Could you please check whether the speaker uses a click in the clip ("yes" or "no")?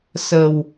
no